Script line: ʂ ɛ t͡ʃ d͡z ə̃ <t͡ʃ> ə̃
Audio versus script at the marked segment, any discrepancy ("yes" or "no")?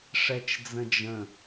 yes